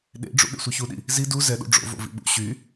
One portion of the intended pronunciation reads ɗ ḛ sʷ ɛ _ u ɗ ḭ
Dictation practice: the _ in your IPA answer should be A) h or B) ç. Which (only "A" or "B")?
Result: B